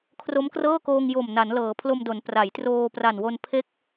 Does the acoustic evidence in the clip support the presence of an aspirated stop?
yes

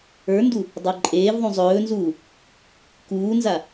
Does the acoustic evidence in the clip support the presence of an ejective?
yes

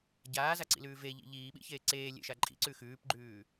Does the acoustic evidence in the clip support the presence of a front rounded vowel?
no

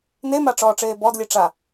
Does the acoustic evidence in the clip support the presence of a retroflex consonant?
yes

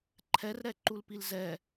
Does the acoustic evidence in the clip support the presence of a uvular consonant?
no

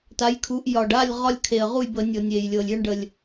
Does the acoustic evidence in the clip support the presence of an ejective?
no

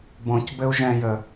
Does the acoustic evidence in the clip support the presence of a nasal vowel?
yes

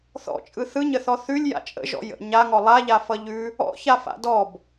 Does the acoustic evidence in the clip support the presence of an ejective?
yes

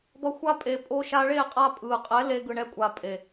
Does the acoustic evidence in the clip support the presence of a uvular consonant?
yes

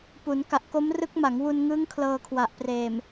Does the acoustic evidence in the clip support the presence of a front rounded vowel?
no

